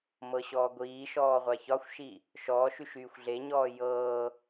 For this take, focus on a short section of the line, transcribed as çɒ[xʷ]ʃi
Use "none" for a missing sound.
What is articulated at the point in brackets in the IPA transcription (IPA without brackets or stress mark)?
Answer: xʷ